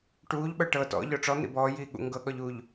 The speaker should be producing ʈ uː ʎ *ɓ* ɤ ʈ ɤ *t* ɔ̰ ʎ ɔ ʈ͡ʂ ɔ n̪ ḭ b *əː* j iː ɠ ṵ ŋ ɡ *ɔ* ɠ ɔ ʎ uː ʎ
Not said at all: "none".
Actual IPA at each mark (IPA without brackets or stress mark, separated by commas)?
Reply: ɓ, t, ɔː, ɤ